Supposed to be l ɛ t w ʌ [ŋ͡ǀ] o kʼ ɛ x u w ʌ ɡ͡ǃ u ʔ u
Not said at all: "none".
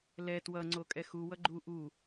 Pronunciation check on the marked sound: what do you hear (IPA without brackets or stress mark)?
ŋ͡ǀ